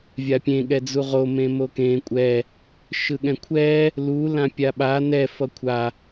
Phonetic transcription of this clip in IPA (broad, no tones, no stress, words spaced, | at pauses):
vʲapʲẽ ɠɛd͡zuʁo mẽmokẽ kʷʼɛ | ʃɯɠɛ̃kʷʰɛ | lu lãpʲaɓa nɛ fʌkʷʰa